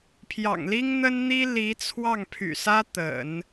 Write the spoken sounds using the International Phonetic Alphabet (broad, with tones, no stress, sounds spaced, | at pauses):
pʰ j ɑ̰˨˩ ŋ l i˥ ŋ n̪ ə˥ n n̪ i˥ l i˧˥ t͡sʰ w ɑ˥˩ ŋ pʰ y̰˨˩ s ä˥ t̪ ə̰˨˩˦ n